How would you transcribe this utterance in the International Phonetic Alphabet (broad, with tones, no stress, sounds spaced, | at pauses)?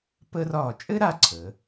p əː˥ r ɒː˦˨ t͡ʃʼ ɘ˥ ɾ a˦˨ ǀʰ ə˩˧